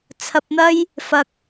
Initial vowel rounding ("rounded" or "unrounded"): unrounded